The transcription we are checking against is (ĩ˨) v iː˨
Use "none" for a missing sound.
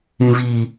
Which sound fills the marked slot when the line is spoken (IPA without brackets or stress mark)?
ĩ˨